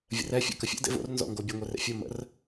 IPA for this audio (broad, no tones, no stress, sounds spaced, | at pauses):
vʲ ə̰ r ɛ fʲ ə̰ k ə fʲ ə̰ d ḛ v o̰ r n z ɔ̰ ŋ ɡ o bʲ ə ŋʷ ɛ r ḛ fʲ o m ə̰ r